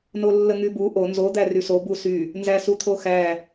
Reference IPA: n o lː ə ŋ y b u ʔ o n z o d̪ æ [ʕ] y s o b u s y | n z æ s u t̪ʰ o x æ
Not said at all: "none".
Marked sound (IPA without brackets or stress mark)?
r